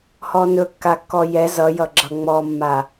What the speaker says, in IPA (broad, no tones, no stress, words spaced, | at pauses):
hɔnɵ kːakːɔjɛ zʌjʌ ɡ͡ǁʌŋ͡mɔmːa